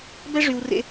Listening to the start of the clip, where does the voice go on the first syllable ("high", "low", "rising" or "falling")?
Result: high